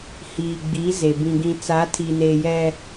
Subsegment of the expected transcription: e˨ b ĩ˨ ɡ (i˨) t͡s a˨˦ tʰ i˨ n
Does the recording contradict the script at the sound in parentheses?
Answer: yes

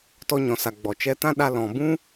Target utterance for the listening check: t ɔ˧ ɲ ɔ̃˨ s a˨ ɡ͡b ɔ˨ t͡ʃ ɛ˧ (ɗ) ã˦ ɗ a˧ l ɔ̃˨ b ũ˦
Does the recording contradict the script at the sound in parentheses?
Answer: yes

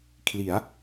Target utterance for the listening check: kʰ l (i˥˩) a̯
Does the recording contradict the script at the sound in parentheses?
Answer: yes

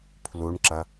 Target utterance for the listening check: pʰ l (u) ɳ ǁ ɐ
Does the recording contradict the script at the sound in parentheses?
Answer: no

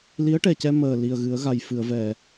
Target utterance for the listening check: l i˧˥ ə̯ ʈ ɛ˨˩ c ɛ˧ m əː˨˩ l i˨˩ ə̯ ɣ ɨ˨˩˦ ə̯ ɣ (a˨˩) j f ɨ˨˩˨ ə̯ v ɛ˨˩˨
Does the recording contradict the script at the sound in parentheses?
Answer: no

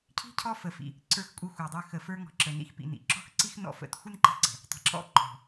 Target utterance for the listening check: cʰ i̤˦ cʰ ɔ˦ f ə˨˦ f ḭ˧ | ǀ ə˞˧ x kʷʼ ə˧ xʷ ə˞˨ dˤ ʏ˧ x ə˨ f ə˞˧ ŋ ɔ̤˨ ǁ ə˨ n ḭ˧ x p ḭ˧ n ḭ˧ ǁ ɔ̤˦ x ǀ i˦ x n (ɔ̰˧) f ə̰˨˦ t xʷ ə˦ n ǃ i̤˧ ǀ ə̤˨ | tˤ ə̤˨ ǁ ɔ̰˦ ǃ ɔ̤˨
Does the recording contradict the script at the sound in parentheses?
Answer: no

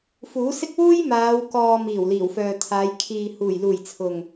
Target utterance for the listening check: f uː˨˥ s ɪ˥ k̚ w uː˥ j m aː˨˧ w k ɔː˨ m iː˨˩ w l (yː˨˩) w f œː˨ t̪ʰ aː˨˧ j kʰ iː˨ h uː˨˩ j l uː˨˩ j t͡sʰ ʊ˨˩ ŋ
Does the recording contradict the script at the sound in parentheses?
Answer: yes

